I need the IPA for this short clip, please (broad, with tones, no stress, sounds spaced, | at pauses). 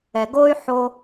ɛ˨ ɡ o˦ y̯ ħ o˦